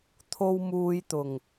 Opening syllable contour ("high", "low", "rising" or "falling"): high